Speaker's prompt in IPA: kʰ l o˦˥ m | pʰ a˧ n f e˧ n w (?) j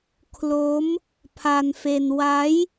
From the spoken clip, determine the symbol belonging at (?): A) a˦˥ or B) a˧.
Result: A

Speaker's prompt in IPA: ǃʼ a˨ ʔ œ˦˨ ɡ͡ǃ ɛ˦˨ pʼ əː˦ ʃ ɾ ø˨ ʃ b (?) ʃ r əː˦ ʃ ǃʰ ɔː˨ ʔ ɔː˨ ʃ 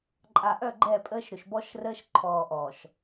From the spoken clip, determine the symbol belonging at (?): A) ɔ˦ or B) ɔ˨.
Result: A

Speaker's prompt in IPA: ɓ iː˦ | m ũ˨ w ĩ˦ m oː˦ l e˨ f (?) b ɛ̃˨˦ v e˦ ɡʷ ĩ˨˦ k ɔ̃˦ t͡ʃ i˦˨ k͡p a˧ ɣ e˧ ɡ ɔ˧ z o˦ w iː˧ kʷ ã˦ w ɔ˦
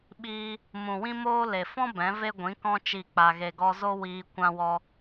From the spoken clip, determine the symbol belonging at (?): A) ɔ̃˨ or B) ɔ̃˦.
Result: B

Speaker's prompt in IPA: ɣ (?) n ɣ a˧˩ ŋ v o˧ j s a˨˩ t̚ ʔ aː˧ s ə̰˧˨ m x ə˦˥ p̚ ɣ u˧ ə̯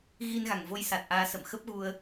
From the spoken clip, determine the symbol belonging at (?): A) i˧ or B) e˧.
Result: A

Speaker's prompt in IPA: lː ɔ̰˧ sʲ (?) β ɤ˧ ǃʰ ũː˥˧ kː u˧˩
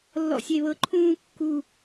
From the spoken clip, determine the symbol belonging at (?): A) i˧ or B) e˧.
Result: B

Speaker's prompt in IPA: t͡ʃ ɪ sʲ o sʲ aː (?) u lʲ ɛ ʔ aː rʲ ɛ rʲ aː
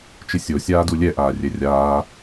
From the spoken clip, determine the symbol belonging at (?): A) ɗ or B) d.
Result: B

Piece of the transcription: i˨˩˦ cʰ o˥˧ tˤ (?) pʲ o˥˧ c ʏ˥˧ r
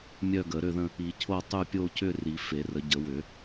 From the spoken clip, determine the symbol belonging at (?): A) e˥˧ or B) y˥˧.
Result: B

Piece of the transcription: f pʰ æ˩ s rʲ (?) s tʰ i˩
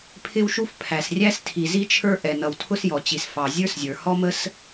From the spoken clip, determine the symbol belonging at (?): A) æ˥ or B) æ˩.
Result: A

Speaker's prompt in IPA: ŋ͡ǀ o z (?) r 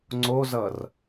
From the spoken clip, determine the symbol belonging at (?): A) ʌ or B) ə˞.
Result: A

